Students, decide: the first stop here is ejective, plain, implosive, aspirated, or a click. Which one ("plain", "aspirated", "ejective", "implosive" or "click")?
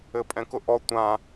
ejective